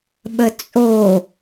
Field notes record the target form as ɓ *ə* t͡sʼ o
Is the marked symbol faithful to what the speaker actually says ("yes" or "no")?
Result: yes